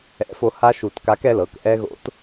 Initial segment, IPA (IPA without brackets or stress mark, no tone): ɛ̰